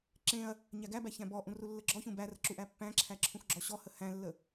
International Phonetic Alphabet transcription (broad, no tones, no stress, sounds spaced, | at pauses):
ǁ ẽ ɐ̯ | ɲ æ ɡ æ b æ ç æ̃ b ɔ ʔ ũ r u lː ə ɡ͡ǁ ɔ ç ũ b æ r ə ǁ u ʔ æ pː æ̃ ǁʰ æ ǁʰ ũ x ɡ͡ǁ ɔ ɕ ɔ h ə h æ̃ lː ə